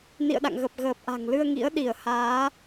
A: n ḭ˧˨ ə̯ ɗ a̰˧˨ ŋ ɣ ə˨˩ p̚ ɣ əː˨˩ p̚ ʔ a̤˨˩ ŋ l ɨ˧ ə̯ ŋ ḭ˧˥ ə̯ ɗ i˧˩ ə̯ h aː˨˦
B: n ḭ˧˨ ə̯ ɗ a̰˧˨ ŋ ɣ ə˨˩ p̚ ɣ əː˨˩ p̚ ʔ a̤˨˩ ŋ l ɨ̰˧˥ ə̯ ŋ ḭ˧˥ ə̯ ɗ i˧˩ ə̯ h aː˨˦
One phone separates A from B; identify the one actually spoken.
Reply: A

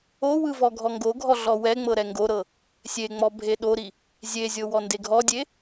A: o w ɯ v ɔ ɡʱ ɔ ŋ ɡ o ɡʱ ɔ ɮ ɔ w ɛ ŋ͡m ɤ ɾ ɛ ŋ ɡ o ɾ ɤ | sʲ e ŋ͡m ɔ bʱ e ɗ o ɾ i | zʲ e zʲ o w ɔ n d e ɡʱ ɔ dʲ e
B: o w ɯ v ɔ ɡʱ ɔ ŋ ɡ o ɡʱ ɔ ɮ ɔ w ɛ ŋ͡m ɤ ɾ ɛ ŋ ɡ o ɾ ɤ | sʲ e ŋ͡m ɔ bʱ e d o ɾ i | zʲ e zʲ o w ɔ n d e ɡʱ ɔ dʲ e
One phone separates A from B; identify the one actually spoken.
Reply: A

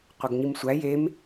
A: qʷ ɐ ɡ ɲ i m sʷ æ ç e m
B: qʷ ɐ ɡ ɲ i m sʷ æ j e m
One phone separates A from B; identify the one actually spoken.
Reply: B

